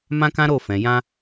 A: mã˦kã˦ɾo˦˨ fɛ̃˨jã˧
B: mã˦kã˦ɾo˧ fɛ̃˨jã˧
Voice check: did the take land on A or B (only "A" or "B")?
A